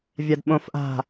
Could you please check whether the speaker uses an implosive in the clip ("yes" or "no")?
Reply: yes